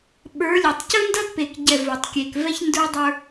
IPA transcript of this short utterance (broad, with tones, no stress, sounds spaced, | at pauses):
ɓ ə˞˨˦ lʲ u˨ tˤ c ɵ˦ n d ɐ˦ d p e˨ k ɟ ɛ˨ v ɵ˨ tˤ kʲ e˨ k v ɛ˦ ç n d ə˞˦ dˤ ə˞˦